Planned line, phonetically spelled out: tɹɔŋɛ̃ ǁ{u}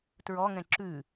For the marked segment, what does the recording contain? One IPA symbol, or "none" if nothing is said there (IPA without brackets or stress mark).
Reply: ʉ